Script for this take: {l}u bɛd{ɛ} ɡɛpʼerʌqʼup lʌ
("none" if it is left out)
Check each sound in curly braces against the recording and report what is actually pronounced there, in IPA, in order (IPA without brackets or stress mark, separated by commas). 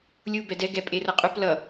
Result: lʲ, ɛ